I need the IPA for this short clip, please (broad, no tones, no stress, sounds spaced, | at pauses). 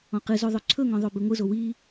ɔ̃ q ɨ z o ðˤ ɵ ǀʰ ɵ ŋ ɔ̃ ðˤ o b i ŋʷ ɯ z o w i